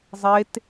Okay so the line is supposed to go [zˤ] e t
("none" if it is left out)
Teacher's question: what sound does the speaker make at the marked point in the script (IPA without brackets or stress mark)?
zˤ